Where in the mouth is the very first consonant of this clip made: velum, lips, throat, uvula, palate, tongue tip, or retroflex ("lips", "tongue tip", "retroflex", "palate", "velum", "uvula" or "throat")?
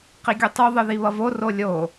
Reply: uvula